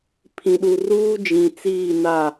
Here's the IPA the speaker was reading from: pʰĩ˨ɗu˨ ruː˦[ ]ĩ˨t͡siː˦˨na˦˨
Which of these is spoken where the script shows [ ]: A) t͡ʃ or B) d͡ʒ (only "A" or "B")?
B